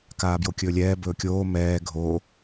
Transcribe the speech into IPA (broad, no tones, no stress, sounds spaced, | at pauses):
k aː b j o kʲ ɵː lʲ ɛː b ɵː kʲ oː m ɛː ɡʱ o